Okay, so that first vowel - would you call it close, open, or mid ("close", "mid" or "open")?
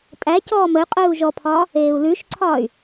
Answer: open